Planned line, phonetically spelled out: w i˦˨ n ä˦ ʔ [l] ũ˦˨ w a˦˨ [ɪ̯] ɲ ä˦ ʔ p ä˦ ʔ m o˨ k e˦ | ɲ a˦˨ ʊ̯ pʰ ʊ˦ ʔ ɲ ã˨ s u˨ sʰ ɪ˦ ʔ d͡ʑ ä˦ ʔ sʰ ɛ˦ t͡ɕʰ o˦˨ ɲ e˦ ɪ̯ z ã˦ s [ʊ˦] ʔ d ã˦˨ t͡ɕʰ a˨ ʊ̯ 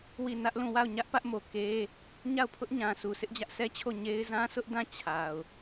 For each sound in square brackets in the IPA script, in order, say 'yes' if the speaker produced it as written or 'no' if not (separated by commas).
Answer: yes, no, yes